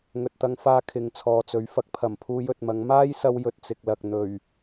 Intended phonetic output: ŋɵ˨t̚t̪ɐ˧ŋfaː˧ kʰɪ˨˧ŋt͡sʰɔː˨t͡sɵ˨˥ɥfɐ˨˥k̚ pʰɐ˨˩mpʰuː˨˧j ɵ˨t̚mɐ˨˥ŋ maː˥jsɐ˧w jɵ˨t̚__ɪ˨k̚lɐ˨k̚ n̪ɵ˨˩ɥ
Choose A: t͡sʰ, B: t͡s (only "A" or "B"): B